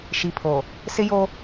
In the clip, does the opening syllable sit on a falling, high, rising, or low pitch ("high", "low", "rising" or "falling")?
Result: low